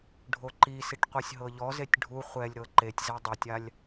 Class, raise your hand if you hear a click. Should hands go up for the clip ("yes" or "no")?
yes